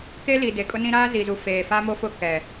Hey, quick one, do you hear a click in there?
no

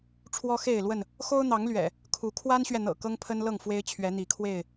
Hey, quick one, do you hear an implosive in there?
no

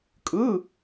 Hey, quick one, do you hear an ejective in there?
yes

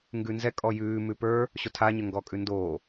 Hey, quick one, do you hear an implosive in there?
no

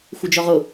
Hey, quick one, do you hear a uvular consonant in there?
yes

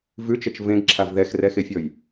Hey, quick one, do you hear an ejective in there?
no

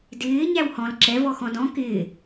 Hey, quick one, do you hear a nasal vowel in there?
yes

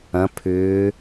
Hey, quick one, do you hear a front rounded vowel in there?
yes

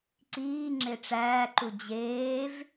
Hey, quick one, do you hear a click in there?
yes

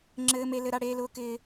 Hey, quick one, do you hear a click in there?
yes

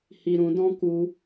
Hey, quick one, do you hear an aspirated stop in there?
no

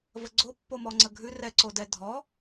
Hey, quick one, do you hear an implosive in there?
no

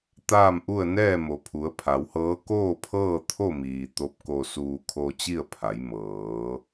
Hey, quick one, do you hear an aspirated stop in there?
yes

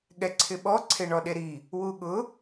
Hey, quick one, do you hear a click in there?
yes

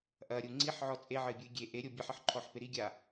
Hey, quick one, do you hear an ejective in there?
yes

